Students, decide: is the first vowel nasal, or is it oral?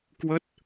oral